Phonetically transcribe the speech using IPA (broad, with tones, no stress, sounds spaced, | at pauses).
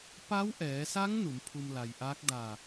p a˧˥ w ʔ ɛː˩˧ s a˧˥ ŋ n u˩˧ m pʰ u˧ m l a˩ j ʔ aː˧˥ k̚ d aː˧˩